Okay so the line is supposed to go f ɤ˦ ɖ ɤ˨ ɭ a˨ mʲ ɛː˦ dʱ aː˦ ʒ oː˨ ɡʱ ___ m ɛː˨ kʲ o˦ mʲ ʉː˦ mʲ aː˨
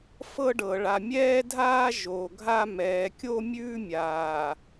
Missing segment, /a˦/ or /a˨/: a˦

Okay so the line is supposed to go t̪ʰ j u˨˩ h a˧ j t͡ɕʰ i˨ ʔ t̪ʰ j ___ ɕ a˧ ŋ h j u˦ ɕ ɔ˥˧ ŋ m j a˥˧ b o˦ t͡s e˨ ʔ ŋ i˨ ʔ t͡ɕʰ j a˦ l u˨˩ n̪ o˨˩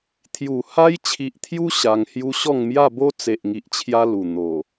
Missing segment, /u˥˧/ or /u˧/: u˧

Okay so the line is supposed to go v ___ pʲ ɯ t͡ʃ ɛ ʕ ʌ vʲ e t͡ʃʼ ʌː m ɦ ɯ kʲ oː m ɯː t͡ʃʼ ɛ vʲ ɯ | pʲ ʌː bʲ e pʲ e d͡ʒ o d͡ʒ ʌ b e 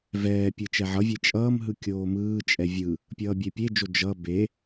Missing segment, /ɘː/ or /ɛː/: ɛː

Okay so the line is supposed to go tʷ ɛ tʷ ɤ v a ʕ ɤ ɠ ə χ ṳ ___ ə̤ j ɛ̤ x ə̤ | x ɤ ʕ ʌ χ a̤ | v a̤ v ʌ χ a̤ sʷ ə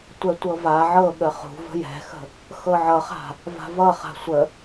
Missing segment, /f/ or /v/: v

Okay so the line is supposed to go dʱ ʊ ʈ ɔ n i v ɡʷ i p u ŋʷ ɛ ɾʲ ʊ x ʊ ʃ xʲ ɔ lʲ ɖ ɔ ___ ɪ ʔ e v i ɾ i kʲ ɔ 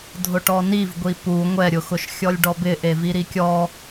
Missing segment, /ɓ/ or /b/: b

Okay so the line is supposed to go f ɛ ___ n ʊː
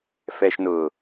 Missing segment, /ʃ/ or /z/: ʃ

